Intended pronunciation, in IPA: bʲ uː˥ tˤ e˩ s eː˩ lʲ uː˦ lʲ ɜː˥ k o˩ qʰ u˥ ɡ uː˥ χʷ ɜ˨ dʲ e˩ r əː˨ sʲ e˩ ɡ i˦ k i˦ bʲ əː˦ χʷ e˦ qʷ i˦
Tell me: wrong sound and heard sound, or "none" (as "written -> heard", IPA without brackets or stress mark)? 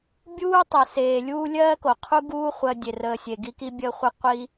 none